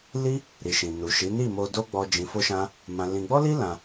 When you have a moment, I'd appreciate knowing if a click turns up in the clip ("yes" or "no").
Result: no